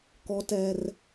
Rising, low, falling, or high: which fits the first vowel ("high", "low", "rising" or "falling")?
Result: high